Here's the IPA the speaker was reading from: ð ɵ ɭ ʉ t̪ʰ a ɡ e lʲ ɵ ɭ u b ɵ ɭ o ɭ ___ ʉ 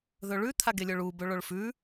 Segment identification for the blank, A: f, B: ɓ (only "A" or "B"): A